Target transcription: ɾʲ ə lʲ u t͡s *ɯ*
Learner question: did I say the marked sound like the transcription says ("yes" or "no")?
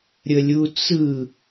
yes